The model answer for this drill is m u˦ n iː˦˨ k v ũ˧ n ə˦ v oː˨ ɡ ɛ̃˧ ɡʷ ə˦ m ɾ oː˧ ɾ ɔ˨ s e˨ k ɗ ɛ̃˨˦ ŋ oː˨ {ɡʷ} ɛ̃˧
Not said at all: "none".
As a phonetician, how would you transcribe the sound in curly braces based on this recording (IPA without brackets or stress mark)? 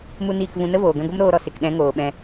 ɓ